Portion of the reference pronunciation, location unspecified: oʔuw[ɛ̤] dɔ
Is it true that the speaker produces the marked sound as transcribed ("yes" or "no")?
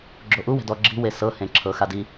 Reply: yes